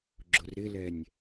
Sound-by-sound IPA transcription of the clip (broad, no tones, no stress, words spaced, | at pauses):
ɡ͡ǁʊrɾɪlɛnʲ